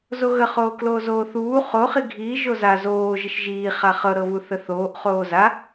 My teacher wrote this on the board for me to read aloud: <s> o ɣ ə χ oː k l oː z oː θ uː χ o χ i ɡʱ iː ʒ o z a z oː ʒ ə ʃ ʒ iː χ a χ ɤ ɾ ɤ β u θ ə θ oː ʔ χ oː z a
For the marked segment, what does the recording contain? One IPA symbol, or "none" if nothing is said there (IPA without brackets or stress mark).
z